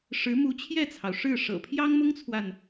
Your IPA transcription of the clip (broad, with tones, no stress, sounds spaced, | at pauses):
ʂ ɻ̩˧˥ m u˧˥ t͡ɕʰ j ɛ˥˩ t͡sʰ ɑ˩ ʊ̯ ʂ ɻ̩˥˩ ʂ ɤ̰˨˩ pʰ j ɑ˥ ŋ m ʊ˥ ŋ t͡sʰ w a˨ n